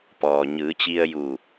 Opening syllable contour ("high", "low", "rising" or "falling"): low